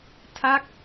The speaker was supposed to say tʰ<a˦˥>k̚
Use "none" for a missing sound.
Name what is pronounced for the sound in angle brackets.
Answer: a˦˥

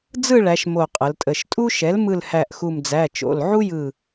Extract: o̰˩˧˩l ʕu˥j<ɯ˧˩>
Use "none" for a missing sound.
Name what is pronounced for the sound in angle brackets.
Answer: ɯ˧˩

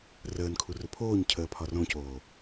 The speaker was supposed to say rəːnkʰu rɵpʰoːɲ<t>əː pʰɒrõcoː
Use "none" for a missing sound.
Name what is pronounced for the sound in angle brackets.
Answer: cʰ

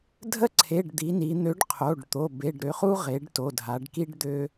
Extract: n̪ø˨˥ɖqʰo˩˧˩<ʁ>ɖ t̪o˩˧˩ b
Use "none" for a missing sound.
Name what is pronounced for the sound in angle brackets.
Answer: none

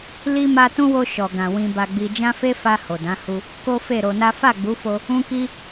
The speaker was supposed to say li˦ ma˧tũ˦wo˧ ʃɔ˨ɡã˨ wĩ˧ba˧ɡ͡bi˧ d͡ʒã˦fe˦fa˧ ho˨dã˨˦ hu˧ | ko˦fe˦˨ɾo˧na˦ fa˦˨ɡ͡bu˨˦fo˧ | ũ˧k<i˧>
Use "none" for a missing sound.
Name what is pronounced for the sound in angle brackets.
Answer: i˧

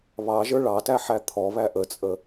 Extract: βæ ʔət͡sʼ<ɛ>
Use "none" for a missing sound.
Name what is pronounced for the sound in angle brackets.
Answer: ə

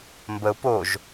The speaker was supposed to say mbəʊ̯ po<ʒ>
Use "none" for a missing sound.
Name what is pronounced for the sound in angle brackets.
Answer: ʒ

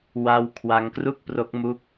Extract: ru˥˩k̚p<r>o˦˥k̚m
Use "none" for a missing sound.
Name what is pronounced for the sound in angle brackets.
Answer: r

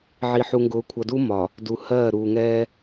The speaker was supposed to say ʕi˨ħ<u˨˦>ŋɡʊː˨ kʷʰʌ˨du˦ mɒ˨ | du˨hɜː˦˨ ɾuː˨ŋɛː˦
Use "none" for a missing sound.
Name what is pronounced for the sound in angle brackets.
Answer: u˨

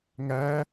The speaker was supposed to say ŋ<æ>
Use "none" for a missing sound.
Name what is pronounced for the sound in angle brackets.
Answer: æ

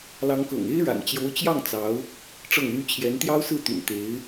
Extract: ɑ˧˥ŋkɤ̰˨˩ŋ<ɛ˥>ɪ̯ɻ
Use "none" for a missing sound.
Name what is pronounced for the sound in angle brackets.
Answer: e˥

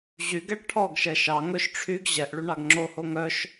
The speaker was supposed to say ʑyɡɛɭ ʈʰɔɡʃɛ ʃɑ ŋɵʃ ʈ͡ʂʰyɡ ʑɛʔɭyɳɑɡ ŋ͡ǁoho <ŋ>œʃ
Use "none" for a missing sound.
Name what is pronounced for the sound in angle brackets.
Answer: ŋ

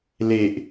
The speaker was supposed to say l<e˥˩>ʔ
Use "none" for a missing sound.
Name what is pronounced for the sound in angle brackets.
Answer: e˨˩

